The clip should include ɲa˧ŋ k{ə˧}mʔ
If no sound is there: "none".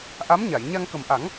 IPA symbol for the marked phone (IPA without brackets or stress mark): ə˨˩